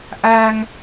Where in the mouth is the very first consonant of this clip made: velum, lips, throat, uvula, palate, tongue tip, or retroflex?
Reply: throat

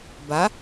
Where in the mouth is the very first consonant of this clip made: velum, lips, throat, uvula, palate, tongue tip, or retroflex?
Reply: lips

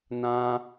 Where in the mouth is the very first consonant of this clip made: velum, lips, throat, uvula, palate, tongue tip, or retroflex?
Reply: tongue tip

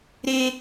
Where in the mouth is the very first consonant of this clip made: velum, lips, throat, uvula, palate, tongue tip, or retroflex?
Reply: tongue tip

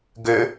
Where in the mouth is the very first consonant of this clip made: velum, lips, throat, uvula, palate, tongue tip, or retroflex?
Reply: velum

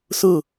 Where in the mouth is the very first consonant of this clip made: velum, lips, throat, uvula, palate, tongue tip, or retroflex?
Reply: tongue tip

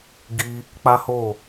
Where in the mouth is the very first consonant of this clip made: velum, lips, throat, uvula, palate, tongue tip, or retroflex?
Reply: velum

